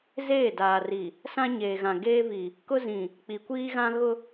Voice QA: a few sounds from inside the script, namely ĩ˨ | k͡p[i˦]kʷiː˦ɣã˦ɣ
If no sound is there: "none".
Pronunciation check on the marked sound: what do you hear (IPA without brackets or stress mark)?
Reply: i˨